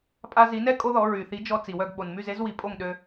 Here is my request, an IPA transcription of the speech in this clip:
pʼa˧zi˩˥nɛ˥ kʼo˥ðɔ˩˥ ɹy˩θi˩˥d͡ʒɔ˧ t͡si˩wœ˥˩ɡ ɓo˩nmy˥˩ze˥zwi˩˥ pʼo˥˩ŋɗø˧

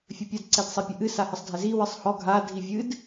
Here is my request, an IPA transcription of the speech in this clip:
fʲɘpʲɐd ǀɛdsˤipʲɐʔɨ sahɘsˤdʱɛzi wɨsˤhɔ ɡʱa dʱivʲɨd

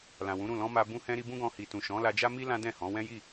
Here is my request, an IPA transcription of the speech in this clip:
lã˨wũ˨˦ɾũ˦˨ lɔ̃˧ ma˧ bũ˧hɛ̃˧ ɾi˧bũ˦ɡɔ̃˧ hi˨tũ˨ʃɔ̃˨˦la˧ d͡ʒa˦mi˦ lã˦dɛ̃˦˨hɔ̃˨˦ wɛ̃˦ji˦˨

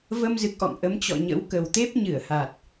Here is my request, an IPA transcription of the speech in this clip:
və˧mzɨ˨˩k̚ʔɔ̰˧˨ŋ ʔə˨˦mt͡ɕɔ̰˧˨ɲə̰˧˥w kə˨˩wt̪e˦˥p̚ɲɨ˧˩ə̯ha˨˩t̚

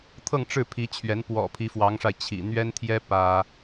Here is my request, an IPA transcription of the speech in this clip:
t̪ʰɤ˥˧ŋʈ͡ʂɻ̩˥˩pʰi˧˥t͡ɕʰɥɛ˧˥n pwɔ̰˨˩ pʰi˧˥fwɑ˧˥ŋʂa˧ɪ̯ t͡ɕʰḭ˨˩ n̪ɥɛ˥nt̪ʰjɛ˥ pä˥

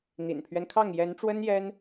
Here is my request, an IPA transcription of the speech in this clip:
n̪ḭ˨˩npʰɥɛ˦nkʰɑ˥˩ŋ jɛ˧˥nʈ͡ʂwə˥njɛ˥n

